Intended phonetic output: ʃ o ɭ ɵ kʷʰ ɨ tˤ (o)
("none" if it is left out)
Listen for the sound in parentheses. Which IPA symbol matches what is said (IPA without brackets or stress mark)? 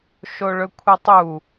u